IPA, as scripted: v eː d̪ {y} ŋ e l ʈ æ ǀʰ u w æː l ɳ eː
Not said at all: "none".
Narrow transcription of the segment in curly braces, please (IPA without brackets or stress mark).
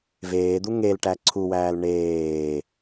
u